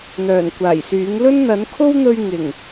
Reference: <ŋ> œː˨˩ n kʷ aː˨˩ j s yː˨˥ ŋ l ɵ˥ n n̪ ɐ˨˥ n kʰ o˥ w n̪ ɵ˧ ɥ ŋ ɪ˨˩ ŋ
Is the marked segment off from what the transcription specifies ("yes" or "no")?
yes